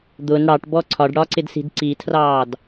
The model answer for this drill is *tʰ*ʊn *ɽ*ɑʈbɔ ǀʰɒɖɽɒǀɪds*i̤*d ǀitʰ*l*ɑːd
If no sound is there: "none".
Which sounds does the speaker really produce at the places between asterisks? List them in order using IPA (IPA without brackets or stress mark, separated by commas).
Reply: d̪, ɽ, i̤, r